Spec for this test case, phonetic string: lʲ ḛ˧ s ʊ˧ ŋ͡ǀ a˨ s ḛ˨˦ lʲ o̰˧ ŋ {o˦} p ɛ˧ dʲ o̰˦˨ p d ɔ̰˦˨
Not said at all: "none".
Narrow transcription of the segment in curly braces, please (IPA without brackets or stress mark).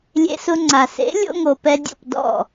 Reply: o˨